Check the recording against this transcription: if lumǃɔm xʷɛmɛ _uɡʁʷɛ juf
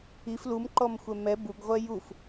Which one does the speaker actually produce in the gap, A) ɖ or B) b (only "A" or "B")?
B